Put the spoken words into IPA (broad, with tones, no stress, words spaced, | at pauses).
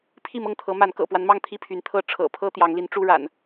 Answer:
pʰi˥˨mɤ˥˨ŋt̪ʰɤ˨˦ma˨˦n kɤ̰˨˩pwa˦nmɑ˥˨ŋ t̪ʰi˥˨pʰy˨˦n t̪ʰɤ˥˨ʈ͡ʂʰɤ̰˨˩pʰɤ˦ t̪jɑ˨˦ŋli˨˦n ʈ͡ʂu˦ɻa̰˨˩n